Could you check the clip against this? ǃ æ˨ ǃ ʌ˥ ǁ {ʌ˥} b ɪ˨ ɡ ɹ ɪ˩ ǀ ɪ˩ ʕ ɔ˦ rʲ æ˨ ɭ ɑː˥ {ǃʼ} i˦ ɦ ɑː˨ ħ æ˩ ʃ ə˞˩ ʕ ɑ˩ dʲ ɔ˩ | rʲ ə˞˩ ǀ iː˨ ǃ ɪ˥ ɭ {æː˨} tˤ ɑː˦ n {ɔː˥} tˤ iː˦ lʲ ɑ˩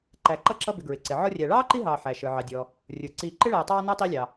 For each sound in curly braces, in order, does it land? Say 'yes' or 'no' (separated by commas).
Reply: no, no, yes, no